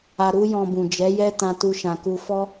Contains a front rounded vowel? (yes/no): no